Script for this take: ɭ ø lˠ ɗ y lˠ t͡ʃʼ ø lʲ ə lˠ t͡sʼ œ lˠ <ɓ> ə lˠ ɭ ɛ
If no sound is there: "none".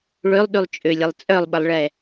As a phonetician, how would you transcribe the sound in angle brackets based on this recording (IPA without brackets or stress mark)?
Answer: ɓ